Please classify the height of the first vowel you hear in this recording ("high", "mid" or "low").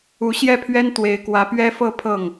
high